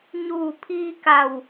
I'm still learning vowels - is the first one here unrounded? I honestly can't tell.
no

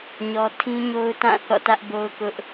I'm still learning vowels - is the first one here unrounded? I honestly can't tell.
no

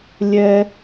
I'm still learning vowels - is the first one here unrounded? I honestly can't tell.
yes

